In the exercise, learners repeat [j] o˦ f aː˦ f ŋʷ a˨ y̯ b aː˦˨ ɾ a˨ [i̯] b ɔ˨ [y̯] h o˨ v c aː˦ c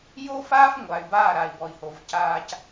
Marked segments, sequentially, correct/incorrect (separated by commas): correct, correct, incorrect